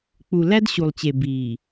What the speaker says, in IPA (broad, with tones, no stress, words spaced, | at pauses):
k͡pu˨ læ˦d ɕu˨lˠt͡ɕe˨ biː˨